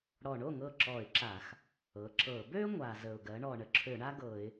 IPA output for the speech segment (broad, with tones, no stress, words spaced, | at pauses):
ɽɔ˨˩ɳo˥˩ ŋɤ˥˩ǁɔ˧˩˧ɪ̯ǁa˧˩˧x | ɤ˩˧ǁɤ˧˩˧ bø˥ ŋʷa˨˩zə˨˩ʊ̯ ɡɜ˩˧ɳɔ˨˩ ɳə˨˩ǁʰø˧˩˧ɳa˥ ɡɤ˧˩˧ɪ̯